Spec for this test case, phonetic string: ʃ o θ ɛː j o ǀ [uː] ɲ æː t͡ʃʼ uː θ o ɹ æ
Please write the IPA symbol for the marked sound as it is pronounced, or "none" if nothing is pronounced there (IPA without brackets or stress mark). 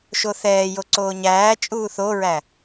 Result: oː